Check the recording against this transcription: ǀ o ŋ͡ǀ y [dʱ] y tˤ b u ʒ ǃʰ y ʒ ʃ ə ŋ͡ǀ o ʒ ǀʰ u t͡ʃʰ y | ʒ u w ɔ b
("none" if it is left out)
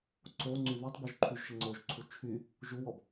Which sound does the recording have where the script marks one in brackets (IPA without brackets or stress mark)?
ð